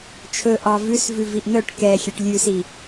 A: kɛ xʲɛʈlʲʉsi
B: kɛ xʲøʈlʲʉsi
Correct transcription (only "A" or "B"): B